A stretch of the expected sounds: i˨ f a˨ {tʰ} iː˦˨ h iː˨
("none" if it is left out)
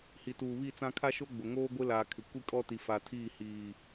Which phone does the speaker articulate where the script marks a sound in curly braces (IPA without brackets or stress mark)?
tʰ